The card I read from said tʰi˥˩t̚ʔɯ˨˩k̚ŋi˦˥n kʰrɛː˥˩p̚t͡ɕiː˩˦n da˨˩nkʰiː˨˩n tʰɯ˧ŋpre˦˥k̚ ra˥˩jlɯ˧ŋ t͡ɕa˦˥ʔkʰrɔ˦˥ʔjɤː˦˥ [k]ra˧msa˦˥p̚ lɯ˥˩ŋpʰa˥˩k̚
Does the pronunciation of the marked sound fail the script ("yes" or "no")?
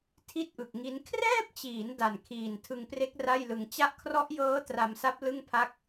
yes